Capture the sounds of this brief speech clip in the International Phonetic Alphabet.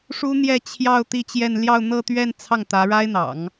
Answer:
ʂu˥ n̪jɛ˥˧t͡ɕʰjɑ˥˧ʊ̯ t̪i˥˧t͡ɕjɛ˥˧n ljɑ˥˧ʊ̯n̪ɤ˥˧t̪ɥɛ˥˧n t͡sʰɑ˥˩ŋt̪ä˧˥ɻa˥ɪ̯n̪ɑ̰˨˩˦ŋ

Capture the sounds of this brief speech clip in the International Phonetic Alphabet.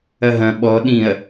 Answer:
ɐɦɐ̃ ɓɔ ɗĩɐ̯

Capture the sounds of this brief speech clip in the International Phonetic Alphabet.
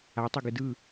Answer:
atˤɯɡɯ dɯ

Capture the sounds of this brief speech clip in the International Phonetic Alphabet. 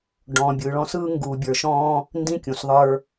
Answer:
ɖɔ̃ː˨bʲɯː˨ɭɔ̃˦ sɯː˦ŋɡuː˨bʲə˞˨ʃɔ̃ː˦ | ndĩ˦kʲũ˨s ðˤə˞˦

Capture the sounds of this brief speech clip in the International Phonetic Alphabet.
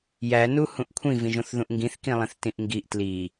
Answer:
jænu hũʔkʷʰĩvĩʒõθ ðũʔŋɡĩθkĩlˠĩθ tĩʔŋɡiʔ tli

